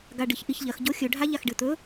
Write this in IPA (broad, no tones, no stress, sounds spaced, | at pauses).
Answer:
ɡ a ɖ ɨ ç ʔ i ç ʎ ɐ x ɟ o xʲ ɵ ɖʱ a ʎ a x ɖ ɨ t̪ ɵ